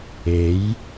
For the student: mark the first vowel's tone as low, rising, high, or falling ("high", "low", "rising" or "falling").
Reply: rising